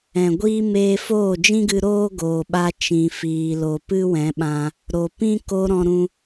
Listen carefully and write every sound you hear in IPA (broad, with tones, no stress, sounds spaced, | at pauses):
ɛ̃˨ ɡʷ iː˦ m eː˧ f oː˦˨ d͡ʒ ĩ˦ ɡ ɨ˧ ɾ oː˦ ɡ oː˨ ɓ a˧ t͡ʃ ĩ˨ f iː˨ l o˨ p ɨ˦ w ɛ̃˨˦ ɓ ã˧ | ɾ o˨ p ĩ˦ k o˧ ɾ ɔ̃˧ ɾ ũ˧